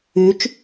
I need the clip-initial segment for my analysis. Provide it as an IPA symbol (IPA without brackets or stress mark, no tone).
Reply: y